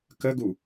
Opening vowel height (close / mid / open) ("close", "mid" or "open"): mid